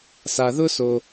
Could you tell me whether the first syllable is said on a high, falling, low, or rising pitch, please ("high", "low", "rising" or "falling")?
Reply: low